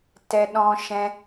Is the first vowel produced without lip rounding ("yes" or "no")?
yes